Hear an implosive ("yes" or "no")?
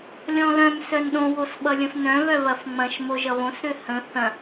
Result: yes